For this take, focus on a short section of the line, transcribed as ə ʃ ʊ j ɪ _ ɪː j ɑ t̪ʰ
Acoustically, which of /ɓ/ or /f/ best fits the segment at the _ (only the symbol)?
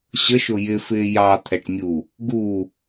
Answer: f